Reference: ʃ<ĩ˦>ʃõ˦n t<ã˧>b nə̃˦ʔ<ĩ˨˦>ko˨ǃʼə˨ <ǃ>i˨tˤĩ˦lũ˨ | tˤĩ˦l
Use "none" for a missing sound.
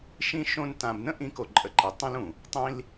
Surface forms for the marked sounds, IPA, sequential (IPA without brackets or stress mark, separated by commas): ĩ˦, ã˧, ĩ˨˦, ǃ